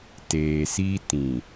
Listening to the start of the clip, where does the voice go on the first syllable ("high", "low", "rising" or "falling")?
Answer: low